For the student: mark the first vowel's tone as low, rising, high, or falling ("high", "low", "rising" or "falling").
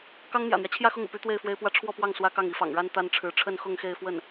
high